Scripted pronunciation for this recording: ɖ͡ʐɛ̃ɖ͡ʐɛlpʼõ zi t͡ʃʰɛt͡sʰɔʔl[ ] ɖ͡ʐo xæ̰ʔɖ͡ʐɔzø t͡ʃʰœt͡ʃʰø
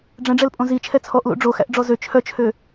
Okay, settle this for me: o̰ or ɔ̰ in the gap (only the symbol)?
o̰